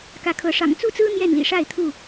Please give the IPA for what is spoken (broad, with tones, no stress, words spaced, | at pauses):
kä˨˦kʰɤ˨˦ ʂɑ̰˨˩ŋt͡su˥˨t͡sɹ̩˦ n̪jɛ˥˨nlḭ˨˩ ʂa˥˨ɪ̯t̪ʰu˥˨